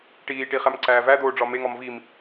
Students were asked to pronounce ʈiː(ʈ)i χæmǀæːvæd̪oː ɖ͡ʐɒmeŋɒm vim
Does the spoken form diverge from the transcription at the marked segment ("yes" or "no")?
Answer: no